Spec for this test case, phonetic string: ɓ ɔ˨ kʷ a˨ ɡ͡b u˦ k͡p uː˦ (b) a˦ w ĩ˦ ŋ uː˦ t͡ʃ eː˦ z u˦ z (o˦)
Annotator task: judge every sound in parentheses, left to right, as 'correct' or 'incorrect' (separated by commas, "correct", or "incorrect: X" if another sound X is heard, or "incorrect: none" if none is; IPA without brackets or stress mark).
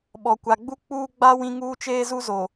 incorrect: ɡ͡b, incorrect: o˨